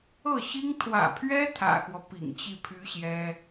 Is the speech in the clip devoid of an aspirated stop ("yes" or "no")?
no